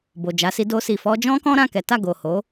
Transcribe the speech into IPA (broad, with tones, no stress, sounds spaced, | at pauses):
b o˨ d͡ʒ a˨˦ s i˧ d o˧ s i˨ f ɔ˧ d͡ʒ ɔ̃˦ k ɔ̃˦ ɾ ã˦˨ k ɛ˨˦ t a˦˨ ɡ o˨ h o˨˦